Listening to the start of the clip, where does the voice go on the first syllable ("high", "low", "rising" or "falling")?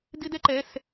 high